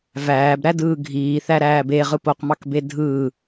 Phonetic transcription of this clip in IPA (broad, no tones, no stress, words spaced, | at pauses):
væːbɾædɯː ɡʱiːθæɾæːb eʁɯp oqmɑkbe dʱɯː